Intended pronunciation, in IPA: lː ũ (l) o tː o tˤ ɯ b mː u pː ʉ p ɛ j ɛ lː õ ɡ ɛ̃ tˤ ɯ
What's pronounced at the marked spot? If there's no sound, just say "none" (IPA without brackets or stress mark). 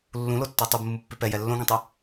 l